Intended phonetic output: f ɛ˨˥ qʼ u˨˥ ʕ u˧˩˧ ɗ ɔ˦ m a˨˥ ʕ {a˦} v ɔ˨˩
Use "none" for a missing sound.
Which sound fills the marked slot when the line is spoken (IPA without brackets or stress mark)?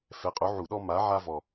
a˦